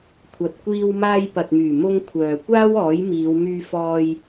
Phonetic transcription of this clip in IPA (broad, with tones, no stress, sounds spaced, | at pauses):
kʷʰ ɐ˨ t̚ kʷ iː˧ w m aː˧ j p ɐ˨ t̚ m yː˨˩ m ʊ˧ ŋ kʷʰ œː˨ kʷ aː˥ w ɔː˨˥ j m iː˨˧ w m yː˧ f ɔː˧ j